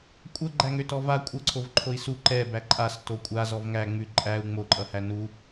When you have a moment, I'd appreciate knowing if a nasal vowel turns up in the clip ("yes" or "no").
no